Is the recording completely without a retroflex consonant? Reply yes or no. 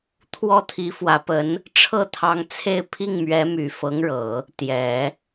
no